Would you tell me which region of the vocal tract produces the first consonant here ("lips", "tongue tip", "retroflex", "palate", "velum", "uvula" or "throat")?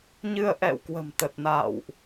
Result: palate